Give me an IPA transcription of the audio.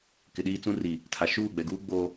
k ɪ˨ ɗ iː˦ t͡s ũ˦ r i˨ | tʰ a˨ ʃ uː˦˨ ɡ͡b ɛ˨ ɡ uː˦ ɡ͡b oː˦

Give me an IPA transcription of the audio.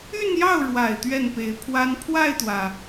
y˥˧ n j ɑ˥˩ ʊ̯ ɻ w a˨˩ ɪ̯ t̪ ɥ ɛ˥˩ n p e˧˥ ɪ̯ pʰ w a˥ n pʰ w a˥˩ ɪ̯ t̪ w ä˩

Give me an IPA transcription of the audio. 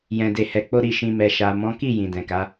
j ɛ̃˨ d e˨ h ɛ˨ k͡p o˧ ɾ i˨ ʃ ĩ˨ m ɛ˨ ʃ a˨ m ɔ̃˨˦ k i˦˨ j ĩ˨ d ɛ̃˨ k a˨˦

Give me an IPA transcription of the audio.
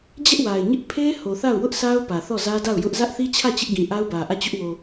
d͡ʑ ɛ˦ ʔ w a˨ ɪ̯ ɲ ɪ˦ ʔ pʰ e˦ h o˨ θ a˦˨ ʊ̯ w ʊ˦ ʔ sʰ a˦ ʊ̯ p ä˨ θ ɔ˦˨ z ä˦ d a˦˨ ʊ̯ j ʊ˦ ʔ z ä˦ ʔ θ i˦ t͡ɕʰ ä˦˨ t͡ɕ ɪ˦ ʔ ɡ ĩ˨ ʔ a˦ ʊ̯ b ä˨ ʔ ä˦˨ t͡ɕ ʊ˦ ʔ w o˨

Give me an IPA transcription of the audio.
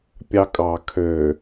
pʲ ɑ kʼ ɑ kʰ ø

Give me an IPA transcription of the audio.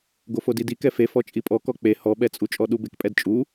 ɡ o f o d i d i k ɛ f e f ɔ t͡ʃʼ i pʼ ɔ k ɔ k͡p e h ɔ ɓ ɛ t͡sʼ u t͡ʃʼ ɔ ɗ u b e k pʼ ɛ d t͡ʃʼ u

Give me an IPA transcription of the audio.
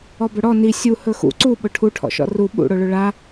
ɔ b ɵ ɽ ɔ n i sʲ u h ɵ x ṵ ǀ u ɓ ʊ ʈʰ u ʈʰ ɔ̰ ʃ ɔ̰ r u ɓ ṵ ɽ o ɭ ɵ ɭ a

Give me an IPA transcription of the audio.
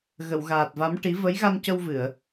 ɣ ə˨˩˨ w ɣ aː˨˩ t̚ v a˧˥ m ʈ i˧˥ v ə˧˥ j ɣ a˧ n c ə˧ w v ɨ˨˩˨ ə̯

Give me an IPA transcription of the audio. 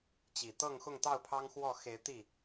t͡ɕ i˨˩ t̪ ɤ˥˨ ŋ x ʊ˥˨ ŋ t̪ ɑ˥˨ ʊ̯ pʰ ɑ˦ ŋ x w ɔ˥˨ x e˨˦ ɪ̯ t̪ i˥˨

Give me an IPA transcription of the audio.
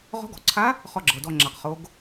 ʁ ɔ̤˧˥ ɡ ɔ̤˩ ǀʰ a˧˥ | χ ɔ˦˨ ɡ͡ǁ ɤ˩ d ɔ˦˨ ŋ͡ǁ a˩ q χ o˩˧ ɡ

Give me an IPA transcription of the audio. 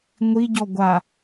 ŋʷ i ɟ ɔ ɡʷ a

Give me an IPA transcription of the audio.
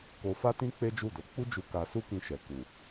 k o˧ f a˦ t ĩ˦ k͡p e˦ d͡ʒ u˦˨ d o˨˦ k͡p u˦ d͡ʒ u˧ k a˧ s u˦ k ĩ˧ ʃ ɛ˨ k u˨

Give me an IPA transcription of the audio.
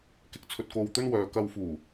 k ɪ˨ k̚ t͡sʰ ɵ˨ t̚ k o˨ w t̪ ɵ˧ n w œː˨˧ k ɐ˧ w f uː˨˩

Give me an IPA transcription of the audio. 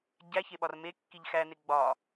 ɟ æ ç e ɓ ɒ r m e kː i ʎ x æ n e ɡ͡b ɒ

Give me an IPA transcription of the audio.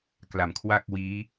k l a˨˩ m kʰ w a˥˩ k̚ w iː˦˥

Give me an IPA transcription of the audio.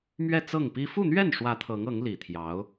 m ɥ ɛ˥˧ t͡s ɤ˥˩ ŋ p i˥ f u˥˧ n̪ ɥ ɛ˥˩ n ʂ w ä˧˥ t̪ʰ ɤ˧˥ ŋ ɤ˧˥ ŋ l i˨˩ t̪ʰ j ɑ˧˥ ʊ̯

